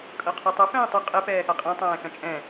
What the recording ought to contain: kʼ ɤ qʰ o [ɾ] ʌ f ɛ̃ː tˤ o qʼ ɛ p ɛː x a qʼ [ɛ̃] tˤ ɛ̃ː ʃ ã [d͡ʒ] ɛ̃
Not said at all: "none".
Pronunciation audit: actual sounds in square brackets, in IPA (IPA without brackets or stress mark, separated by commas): tˤ, ɛ̃, t͡ʃʼ